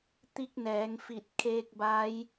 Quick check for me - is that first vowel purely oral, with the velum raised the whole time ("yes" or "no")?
yes